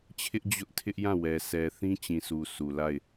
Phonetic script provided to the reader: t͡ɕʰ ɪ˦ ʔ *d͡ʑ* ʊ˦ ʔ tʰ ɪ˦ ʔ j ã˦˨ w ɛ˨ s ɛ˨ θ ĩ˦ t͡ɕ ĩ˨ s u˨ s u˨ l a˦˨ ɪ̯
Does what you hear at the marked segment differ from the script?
no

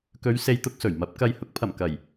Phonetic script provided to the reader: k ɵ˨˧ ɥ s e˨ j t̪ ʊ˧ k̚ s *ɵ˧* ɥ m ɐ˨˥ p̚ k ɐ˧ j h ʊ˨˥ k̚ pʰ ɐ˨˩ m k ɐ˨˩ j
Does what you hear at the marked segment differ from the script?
yes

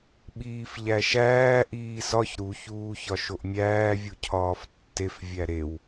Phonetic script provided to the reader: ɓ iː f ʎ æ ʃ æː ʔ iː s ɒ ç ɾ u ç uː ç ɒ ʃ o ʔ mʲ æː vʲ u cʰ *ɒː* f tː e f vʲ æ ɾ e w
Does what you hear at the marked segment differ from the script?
no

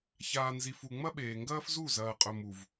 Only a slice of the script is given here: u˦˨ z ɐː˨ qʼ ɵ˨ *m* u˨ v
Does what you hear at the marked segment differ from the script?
no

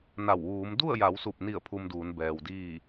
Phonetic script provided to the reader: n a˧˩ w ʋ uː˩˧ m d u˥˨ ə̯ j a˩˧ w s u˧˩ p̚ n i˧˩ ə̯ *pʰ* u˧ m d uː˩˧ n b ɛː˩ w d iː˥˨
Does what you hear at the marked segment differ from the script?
no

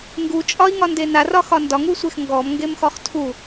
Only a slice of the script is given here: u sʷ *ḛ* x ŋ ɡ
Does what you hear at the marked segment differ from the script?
yes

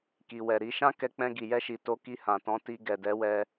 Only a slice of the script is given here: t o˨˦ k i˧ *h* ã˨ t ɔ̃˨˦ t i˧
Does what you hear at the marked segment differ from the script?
no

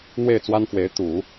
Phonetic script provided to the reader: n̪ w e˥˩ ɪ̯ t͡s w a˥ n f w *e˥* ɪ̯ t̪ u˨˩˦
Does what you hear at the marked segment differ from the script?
yes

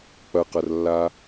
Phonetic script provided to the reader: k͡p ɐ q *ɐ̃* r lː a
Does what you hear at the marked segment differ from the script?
yes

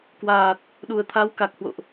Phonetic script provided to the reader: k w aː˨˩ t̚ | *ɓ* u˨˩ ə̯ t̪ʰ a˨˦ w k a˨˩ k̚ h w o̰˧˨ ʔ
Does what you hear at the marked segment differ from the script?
yes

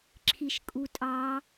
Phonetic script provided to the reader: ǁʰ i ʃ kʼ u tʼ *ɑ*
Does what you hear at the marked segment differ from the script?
no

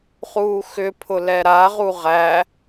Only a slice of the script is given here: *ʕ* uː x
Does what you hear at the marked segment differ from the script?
yes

